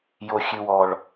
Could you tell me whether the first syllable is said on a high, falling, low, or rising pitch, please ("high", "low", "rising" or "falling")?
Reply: low